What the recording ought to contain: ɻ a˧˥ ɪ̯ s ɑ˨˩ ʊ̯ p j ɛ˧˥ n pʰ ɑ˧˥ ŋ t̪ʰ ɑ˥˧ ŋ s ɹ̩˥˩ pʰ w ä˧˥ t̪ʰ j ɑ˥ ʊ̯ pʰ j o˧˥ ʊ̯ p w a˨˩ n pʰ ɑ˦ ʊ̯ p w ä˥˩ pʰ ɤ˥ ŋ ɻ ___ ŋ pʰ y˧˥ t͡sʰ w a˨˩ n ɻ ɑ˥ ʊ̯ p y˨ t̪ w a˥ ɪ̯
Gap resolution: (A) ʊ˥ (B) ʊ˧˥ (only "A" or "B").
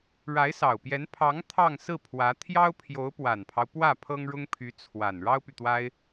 A